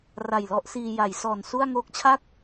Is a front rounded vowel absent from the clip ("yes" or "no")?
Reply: yes